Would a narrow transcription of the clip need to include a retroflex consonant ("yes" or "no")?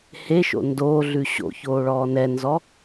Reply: yes